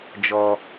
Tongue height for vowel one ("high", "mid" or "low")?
mid